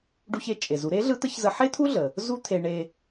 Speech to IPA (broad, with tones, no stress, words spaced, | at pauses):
ɖu˧çe˩˧t͡ʃʼe˩zu˩˧ ɾe˧˥ɮɯ˧˥ t̪ə˧˥çzə˧ ħe˥t̪ʰu˥ɮə˩ | zu˥t̪ʰe˧ ɳe˧